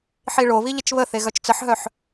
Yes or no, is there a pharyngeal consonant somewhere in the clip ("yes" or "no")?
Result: yes